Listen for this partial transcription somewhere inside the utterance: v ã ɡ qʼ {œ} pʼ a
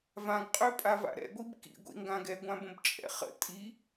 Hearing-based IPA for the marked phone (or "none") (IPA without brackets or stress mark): ø